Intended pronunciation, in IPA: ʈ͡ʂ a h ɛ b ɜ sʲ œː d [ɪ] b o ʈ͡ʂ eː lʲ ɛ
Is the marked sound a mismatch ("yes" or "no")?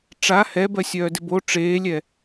no